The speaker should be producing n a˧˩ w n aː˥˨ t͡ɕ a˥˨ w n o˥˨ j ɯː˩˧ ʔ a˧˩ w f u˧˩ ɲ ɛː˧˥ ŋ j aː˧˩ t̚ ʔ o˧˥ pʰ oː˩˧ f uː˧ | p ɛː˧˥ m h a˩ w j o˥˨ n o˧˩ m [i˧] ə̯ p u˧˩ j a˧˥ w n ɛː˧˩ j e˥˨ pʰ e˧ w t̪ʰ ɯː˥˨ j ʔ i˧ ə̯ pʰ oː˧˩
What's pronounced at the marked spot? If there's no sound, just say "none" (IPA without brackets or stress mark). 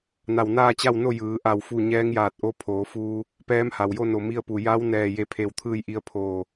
i˥˨